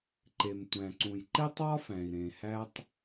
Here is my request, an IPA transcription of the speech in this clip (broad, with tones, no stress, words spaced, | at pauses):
ǃe˩mtʷæ̃˩ ǀũ˩jǃe˥tˤwɒ˥fæ̃˩i̯ ɾẽ˩hæ˥tˤ